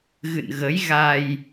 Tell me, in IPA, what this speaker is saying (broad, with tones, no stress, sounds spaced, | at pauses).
ɣ ɨ̰˧˨ n ɣ ə˨˦ j ɣ a˧ j